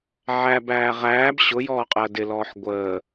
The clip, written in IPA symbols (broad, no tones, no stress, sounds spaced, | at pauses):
ʕ æ b æː ʁ æː b ɕ ʊ j ɔː qʼ əː d ɪ l ɔː ħ ɡʷ əː